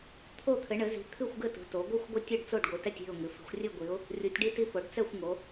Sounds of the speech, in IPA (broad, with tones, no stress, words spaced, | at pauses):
t̪ʰo˦˨ t̪ʰɘ˩˧ɳɘ˩˧zi̤˩˧ t̪ʰɨ˦˨xʷɡɘ˦˨tṳ˩˧to˩˧ ɡʷɨ˦˨xʷɡʷɛ˦˨tʲ ɨ˦˨ɖt͡so˦˨ɖɡʷɨ˩˧tɛ˦˨tʲ i̤˦˨ʊ̯ŋɨ˩˧ fi̤˩˧xʷrʲɨ˦˨ɡʷi˩˧ʊ̯ | rʲu˩˧tʲɖi˦˨ti˦˨ fo˩˧ɖ t͡sɛ˦˨xʷŋo˩˧